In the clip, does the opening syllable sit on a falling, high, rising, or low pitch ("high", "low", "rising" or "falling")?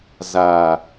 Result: low